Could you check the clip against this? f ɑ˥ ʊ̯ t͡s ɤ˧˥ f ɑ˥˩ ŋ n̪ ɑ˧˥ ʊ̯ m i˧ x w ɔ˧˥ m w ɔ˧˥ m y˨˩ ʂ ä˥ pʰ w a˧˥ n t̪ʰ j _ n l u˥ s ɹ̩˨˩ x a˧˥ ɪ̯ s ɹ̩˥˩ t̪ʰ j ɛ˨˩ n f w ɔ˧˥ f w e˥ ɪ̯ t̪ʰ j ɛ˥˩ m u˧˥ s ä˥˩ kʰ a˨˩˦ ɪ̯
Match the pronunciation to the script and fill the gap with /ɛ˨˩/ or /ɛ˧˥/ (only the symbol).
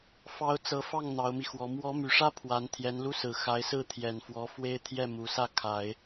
ɛ˧˥